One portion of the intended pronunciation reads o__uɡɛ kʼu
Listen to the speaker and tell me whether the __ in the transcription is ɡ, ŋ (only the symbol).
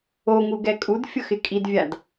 ŋ